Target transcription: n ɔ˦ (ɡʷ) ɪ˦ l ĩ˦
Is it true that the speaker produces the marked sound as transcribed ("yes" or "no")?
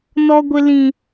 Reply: yes